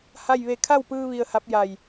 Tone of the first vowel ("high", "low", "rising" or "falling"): falling